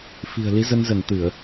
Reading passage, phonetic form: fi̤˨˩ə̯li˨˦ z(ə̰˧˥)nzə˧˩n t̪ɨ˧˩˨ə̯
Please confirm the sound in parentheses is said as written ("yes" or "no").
no